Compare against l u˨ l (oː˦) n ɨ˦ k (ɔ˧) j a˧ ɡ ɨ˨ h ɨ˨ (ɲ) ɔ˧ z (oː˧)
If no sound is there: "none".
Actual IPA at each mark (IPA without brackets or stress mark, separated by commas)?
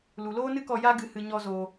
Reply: oː˦, ɔ˧, ɲ, oː˧